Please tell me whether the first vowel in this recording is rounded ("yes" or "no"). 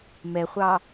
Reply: no